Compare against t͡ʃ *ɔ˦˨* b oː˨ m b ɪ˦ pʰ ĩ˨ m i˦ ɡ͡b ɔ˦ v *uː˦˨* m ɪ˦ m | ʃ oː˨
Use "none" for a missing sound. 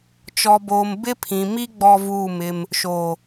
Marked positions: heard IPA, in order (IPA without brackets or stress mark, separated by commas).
ɔ˨, uː˦˨